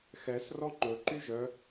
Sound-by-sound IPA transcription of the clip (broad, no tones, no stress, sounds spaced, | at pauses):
x ɛ s r ɔ ŋ͡ǃ ɵ ǃ y ʒ œ